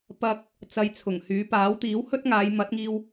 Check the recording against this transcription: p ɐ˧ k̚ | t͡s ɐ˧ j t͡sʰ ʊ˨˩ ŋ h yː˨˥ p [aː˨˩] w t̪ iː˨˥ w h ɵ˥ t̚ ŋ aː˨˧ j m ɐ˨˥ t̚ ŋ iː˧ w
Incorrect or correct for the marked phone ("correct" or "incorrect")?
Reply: incorrect